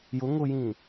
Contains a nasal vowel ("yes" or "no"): yes